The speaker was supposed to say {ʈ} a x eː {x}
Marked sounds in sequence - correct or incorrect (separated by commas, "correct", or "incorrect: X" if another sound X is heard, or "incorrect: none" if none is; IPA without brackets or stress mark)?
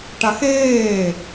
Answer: correct, incorrect: none